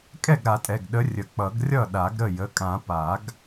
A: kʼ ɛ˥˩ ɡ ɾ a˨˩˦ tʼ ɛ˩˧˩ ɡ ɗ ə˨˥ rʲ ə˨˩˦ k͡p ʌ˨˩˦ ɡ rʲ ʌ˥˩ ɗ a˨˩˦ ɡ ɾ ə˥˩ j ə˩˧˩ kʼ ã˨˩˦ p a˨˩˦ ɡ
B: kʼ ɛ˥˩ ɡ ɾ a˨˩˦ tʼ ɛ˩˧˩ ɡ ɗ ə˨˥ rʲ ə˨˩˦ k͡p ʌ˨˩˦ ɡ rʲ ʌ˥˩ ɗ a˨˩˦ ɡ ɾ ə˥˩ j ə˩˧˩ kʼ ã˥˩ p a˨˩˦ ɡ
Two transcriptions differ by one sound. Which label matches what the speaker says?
A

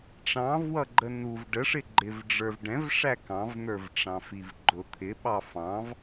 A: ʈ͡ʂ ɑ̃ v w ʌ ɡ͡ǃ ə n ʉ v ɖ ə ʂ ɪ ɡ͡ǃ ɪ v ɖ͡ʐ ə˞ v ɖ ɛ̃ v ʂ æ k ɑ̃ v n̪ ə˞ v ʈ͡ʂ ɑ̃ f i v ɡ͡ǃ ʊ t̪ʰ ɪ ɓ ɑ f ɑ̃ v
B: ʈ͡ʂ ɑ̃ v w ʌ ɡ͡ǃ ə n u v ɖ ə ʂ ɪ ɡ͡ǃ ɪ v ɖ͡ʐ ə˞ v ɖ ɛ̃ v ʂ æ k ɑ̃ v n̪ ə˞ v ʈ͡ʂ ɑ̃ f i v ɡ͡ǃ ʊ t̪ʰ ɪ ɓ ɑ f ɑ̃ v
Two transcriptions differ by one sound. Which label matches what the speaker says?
B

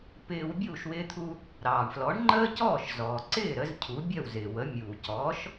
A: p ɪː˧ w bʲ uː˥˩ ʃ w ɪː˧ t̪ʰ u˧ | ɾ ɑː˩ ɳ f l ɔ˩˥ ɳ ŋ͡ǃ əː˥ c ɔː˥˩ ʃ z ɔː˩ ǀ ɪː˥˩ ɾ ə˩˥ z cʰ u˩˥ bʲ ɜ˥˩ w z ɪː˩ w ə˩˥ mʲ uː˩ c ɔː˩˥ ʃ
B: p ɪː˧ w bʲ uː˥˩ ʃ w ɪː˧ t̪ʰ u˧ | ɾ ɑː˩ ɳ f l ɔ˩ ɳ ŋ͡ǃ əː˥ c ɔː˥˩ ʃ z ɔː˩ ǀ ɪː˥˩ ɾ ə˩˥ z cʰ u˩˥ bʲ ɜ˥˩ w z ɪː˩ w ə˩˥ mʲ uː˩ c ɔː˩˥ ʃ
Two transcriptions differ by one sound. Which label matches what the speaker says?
A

